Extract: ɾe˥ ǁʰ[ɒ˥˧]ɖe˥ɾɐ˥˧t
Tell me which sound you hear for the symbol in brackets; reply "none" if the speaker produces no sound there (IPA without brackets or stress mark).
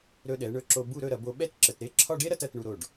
ɒ˥˧